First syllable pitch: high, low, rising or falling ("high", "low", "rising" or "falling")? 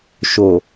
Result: low